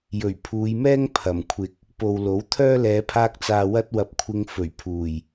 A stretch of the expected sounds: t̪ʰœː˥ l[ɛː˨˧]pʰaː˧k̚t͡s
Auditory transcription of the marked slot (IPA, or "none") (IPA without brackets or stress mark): ɛː˨˧